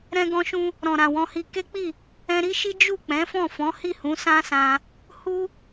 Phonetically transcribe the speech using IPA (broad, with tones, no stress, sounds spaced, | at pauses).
ɾ ɛ̃˦ ɡ ɔ̃˦ ʃ ũ˦ | ɾ ɔ̃˨ ɾ ã˨ w ɔ̃˧ h i˧ k e˦ k͡p i˦˨ | ɛ̃˧ ɾ i˦ ʃ i˦ d͡ʒ u˦˨ k͡p ɛ̃˨˦ f ɔ̃˦˨ f ɔ̃˨˦ h i˦˨ h ũ˨˦ s ã˦ s ã˧ | h u˦